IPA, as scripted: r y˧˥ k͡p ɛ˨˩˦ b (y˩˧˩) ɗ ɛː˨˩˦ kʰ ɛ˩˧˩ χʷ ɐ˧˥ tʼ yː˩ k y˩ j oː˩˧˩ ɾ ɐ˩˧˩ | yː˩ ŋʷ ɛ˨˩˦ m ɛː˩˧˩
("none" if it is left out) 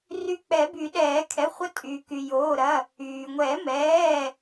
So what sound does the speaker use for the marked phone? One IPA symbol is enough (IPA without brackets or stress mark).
y˨˩˦